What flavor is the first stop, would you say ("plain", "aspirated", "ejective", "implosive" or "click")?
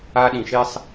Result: implosive